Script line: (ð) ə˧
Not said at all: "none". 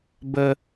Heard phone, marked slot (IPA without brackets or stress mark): b